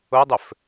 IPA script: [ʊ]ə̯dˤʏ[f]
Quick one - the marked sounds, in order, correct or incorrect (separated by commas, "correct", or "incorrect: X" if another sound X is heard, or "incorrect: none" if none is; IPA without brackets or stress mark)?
correct, correct